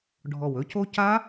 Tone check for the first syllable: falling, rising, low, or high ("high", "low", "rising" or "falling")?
low